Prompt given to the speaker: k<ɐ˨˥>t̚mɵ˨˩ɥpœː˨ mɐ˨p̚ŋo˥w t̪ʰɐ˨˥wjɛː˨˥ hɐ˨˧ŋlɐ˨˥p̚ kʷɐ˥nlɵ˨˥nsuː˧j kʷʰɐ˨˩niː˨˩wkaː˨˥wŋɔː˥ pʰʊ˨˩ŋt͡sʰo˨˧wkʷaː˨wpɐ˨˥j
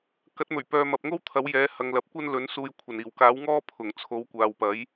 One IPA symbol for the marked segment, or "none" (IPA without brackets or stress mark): ɐ˨˥